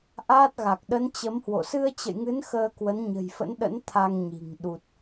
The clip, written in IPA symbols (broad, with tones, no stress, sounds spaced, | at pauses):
ʔ aː˦˥ t̚ ɣ a˨˩ k̚ ɗ ə˨˦ n t͡ɕ ə˨˦ m h w o̰˧˨ s ɨ˧ ə̯ t͡ɕ ə̰˧˨ j ŋ ɨ˨˦ n x əː˧ k w ə˨˦ n ɲ ə̤˨˩ j f ə̰˧˥ n ɗ ə̰˧˥ n t̪ʰ a˧ ŋ ɲ i̤˨˩ ŋ ɗ u˨˩ t̚